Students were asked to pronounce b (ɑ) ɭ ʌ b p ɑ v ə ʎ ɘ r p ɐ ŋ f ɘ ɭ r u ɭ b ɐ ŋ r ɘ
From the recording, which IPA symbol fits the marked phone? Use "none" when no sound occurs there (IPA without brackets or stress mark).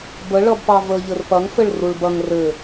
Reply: ə